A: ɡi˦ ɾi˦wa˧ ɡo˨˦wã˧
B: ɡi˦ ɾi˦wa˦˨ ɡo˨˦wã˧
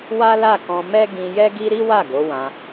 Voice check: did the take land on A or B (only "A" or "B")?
B